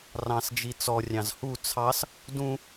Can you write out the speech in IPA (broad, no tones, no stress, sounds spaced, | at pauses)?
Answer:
r ɑ̃ s d͡ʒ i t͡s ɔ rʲ ɑ̃ z h u t͡sʰ ɑ s | d ũ